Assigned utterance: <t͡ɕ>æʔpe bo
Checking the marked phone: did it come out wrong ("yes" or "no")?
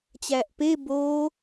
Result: no